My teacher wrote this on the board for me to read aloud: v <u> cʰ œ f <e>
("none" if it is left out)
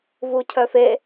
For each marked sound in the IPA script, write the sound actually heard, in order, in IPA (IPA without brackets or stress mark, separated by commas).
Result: u, e